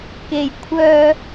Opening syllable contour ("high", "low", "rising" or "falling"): low